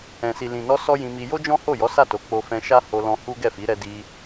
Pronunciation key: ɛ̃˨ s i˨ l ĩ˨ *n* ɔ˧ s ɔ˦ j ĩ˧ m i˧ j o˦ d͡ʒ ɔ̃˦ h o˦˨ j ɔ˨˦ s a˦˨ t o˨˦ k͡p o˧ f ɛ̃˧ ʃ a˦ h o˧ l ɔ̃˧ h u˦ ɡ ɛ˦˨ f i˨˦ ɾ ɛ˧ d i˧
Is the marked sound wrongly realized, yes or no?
no